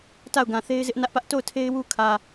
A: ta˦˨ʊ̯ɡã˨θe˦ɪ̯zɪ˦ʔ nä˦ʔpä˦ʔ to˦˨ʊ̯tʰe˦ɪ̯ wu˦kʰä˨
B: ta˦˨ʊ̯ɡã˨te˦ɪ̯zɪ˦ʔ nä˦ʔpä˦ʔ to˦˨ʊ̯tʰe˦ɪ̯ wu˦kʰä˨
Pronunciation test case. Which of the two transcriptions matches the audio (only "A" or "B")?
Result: A